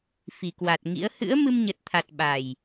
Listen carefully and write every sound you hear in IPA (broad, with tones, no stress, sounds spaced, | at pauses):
f i˨˩ k w a˨˩ t̚ ŋ ḭ˧˥ ə̯ h ɨ̰˧˥ ə̯ m ɨ˧ m ɲ ə˨˩ t̚ t̪ʰ a˨˩ t̚ ɓ a˨˩ j